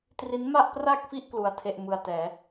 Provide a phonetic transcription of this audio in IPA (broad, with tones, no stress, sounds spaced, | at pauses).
t r i˦˥ n m a˥˩ ʔ p r a˥˩ k̚ f i˥˩ ʔ k l u˧ a̯ tʰ e˥˩ ʔ m ɯ˧ a̯ t ɛː˩˦